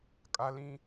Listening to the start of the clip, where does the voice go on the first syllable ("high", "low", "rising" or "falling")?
high